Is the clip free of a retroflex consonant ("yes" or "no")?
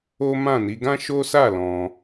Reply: yes